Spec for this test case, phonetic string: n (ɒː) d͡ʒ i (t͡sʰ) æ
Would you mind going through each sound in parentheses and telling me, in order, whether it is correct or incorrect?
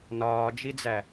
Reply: correct, incorrect: d͡z

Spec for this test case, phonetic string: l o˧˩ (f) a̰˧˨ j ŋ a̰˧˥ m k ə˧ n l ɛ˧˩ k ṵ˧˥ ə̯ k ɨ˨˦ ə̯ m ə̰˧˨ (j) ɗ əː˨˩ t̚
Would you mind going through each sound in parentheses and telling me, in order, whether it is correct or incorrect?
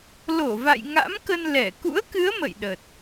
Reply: incorrect: v, correct

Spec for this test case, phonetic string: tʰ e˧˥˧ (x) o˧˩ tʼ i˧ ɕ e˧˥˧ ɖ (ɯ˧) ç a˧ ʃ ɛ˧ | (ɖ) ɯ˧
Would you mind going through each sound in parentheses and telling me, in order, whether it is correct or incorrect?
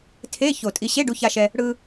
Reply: incorrect: ç, incorrect: u˧, incorrect: ɽ

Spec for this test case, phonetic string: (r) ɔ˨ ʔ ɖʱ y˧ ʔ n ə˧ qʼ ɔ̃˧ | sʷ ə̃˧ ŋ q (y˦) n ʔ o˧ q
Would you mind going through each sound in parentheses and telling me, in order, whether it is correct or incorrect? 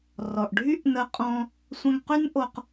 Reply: correct, correct

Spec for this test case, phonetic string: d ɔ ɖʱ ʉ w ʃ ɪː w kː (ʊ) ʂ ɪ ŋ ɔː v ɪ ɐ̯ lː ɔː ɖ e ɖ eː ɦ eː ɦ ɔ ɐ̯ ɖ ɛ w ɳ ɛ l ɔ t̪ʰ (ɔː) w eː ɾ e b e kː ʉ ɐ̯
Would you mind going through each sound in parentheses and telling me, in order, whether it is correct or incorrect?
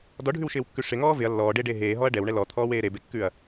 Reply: incorrect: ʉ, correct

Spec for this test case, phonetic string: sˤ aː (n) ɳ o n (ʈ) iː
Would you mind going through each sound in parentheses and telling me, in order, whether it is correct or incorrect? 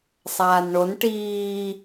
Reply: correct, correct

